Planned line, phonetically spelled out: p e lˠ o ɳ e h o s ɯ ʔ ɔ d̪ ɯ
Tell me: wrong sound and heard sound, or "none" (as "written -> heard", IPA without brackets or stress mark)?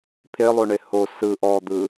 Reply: p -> pʰ